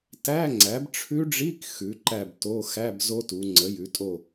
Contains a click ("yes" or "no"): yes